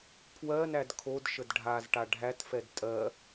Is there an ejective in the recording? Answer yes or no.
yes